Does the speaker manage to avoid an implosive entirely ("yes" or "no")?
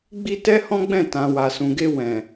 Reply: yes